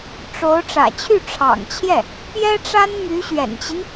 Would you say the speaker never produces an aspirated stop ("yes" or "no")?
no